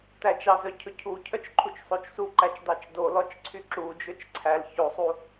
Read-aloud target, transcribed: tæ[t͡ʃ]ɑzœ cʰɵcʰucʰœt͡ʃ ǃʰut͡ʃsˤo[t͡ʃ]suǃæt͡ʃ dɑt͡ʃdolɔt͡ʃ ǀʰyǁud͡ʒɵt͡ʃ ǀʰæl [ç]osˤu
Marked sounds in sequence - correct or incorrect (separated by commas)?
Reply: correct, correct, correct